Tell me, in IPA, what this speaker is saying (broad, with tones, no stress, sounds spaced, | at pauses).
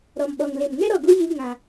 ɾ ɔ˨ m ɓ ɔ˨ ŋ l e˨ m ŋ ɛ˦ ɾ ɔ˧ ɡ u˦ j i˦ ŋ ã˧